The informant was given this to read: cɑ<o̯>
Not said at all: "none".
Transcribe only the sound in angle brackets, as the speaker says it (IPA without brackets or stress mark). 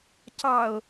o̯